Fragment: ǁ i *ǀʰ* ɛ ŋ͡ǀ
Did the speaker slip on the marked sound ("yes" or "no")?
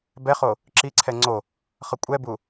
no